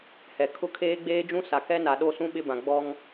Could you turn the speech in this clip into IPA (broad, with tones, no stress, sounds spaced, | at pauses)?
h ɛ˨ kʰ ʊ˦ kʰ eː˦ ɡ͡b eː˦ d͡ʒ ũ˦ s a˨ k ɛ˦ n a˨ ɗ o˦˨ s ũ˦ ɓ ɪ˦ b ã˨ ɡ͡b ɔ˦ ŋ